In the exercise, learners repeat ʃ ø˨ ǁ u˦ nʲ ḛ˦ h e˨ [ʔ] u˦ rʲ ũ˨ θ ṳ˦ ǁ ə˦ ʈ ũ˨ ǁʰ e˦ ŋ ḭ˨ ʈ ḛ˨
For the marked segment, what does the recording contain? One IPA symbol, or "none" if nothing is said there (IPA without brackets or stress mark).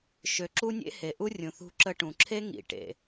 ʔ